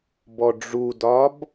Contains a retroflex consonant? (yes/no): yes